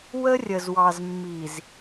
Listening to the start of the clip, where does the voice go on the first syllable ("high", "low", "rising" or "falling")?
high